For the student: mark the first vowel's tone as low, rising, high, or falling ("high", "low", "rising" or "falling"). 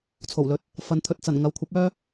low